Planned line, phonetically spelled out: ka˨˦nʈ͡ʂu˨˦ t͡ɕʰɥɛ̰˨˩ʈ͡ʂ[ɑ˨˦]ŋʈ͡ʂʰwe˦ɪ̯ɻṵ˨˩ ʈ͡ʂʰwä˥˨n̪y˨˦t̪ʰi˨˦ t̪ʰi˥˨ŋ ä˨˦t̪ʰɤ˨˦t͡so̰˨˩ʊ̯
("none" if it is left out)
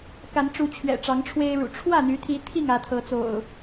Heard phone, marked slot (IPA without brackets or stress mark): ɑ˨˦